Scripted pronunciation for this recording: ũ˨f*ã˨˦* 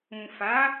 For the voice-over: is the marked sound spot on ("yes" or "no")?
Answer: no